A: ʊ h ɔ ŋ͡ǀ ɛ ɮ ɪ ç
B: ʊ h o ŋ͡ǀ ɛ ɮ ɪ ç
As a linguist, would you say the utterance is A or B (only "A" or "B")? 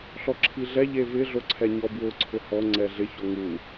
A